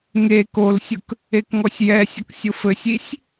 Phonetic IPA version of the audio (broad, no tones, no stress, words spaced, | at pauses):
ŋe kolsʲʊk | ekŋɔsʲjɛsʲək sʲʊfɘsʲisʲ